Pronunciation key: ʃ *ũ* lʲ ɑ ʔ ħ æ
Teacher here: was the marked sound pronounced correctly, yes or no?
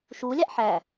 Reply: no